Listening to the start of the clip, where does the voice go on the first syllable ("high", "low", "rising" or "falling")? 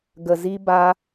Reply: low